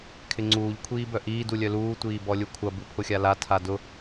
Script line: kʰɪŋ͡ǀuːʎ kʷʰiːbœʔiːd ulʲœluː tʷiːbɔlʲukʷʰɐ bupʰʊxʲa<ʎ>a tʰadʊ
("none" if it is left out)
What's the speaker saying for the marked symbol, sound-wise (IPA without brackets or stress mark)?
l